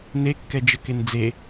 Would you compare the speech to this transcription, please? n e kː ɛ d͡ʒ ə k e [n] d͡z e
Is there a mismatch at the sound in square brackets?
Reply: no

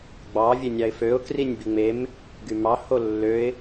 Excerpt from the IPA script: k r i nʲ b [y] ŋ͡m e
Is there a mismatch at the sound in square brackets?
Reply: yes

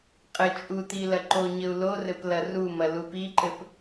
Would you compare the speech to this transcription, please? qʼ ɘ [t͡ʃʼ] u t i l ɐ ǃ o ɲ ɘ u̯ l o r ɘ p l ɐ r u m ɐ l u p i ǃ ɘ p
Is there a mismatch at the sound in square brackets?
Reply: no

